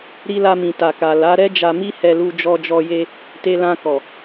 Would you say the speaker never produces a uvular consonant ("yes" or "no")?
yes